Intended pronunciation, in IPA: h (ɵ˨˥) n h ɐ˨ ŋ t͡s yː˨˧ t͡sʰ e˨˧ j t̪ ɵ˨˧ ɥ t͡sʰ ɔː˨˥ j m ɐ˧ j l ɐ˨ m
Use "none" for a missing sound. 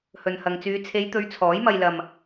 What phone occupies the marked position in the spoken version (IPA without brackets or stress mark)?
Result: ɵ˨